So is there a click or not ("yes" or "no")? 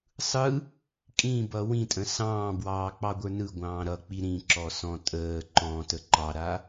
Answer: yes